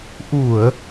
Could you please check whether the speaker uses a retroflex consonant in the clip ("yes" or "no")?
no